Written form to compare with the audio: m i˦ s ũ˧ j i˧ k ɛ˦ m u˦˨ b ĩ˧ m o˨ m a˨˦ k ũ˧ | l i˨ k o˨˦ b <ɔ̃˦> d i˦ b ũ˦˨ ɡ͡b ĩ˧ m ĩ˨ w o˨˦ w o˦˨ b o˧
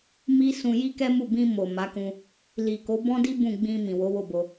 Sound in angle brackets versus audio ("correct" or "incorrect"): correct